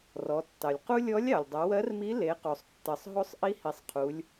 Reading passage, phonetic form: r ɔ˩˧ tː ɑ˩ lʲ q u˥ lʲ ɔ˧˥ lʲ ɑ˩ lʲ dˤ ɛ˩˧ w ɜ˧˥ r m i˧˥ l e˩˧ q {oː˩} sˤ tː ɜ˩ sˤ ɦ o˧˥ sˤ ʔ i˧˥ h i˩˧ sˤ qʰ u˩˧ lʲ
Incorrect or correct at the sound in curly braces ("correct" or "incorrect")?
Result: incorrect